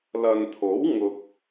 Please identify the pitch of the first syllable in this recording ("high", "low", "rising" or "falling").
low